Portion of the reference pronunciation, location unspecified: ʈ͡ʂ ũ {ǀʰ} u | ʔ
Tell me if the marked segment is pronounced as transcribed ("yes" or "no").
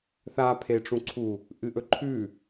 yes